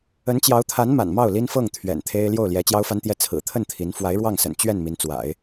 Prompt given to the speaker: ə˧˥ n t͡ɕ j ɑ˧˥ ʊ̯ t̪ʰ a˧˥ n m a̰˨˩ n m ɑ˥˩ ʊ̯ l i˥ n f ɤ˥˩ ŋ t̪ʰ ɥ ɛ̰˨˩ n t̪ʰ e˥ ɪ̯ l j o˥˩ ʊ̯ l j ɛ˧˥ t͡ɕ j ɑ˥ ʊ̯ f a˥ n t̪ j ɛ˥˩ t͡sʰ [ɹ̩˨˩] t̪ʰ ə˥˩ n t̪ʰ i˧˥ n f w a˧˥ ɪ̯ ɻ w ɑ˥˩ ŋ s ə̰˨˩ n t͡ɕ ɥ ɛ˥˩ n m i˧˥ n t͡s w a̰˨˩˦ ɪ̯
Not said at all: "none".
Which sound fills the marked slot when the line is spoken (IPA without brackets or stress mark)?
ɹ̩˨˩